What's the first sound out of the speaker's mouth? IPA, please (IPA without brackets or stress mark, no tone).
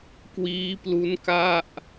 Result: k